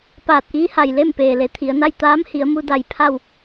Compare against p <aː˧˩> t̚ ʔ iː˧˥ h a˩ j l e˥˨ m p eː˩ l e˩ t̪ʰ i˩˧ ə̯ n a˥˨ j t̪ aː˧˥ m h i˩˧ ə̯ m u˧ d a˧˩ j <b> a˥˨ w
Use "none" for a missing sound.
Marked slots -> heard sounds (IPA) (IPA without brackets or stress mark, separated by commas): aː˧˩, pʰ